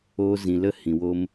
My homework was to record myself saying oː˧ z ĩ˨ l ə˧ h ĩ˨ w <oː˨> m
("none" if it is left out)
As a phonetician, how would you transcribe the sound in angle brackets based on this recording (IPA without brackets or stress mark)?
oː˧